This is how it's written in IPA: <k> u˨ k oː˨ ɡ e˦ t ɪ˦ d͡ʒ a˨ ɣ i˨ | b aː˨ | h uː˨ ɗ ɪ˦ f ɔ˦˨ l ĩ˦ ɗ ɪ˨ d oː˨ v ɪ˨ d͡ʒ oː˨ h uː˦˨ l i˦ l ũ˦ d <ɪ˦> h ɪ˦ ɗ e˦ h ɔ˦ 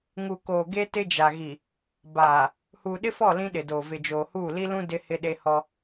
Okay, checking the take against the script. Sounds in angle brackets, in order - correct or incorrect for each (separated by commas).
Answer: incorrect, correct